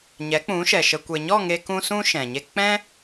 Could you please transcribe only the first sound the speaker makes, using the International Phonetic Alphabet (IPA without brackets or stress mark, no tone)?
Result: ɲ